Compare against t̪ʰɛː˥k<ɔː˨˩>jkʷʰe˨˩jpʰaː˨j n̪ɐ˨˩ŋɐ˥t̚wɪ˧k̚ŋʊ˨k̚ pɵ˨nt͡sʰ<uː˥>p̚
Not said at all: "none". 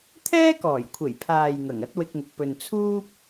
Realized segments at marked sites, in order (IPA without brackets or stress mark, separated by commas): ɔː˨˩, uː˥